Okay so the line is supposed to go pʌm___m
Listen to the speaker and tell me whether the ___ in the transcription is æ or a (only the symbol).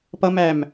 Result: æ